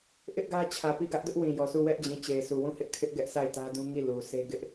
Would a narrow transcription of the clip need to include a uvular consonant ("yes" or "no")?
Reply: no